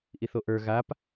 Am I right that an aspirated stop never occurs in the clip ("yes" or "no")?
yes